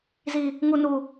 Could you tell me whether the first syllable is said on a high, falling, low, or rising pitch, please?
high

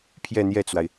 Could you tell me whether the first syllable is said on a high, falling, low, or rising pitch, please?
falling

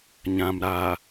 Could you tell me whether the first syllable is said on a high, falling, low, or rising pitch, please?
low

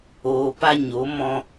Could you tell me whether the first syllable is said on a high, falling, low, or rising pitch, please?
low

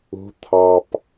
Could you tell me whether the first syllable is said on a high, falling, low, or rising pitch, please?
rising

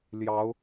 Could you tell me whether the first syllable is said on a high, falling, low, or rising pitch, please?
rising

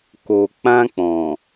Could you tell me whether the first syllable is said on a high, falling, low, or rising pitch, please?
low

